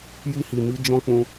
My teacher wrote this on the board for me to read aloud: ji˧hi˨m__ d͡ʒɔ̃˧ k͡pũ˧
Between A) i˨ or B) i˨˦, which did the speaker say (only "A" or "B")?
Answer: B